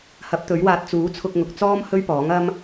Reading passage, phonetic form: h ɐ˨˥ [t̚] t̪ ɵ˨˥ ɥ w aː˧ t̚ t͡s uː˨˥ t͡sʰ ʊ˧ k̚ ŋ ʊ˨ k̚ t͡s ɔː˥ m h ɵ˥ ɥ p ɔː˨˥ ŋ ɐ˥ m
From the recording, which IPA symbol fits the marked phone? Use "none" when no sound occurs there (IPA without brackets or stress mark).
p̚